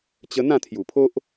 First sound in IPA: t͡ɕ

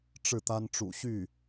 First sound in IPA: ʈ͡ʂ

